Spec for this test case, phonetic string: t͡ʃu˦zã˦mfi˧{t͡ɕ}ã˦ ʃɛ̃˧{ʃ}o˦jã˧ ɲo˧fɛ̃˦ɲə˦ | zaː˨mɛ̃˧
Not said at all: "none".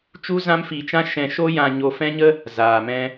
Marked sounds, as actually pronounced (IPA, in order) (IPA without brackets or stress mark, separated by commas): t͡ʃ, ʃ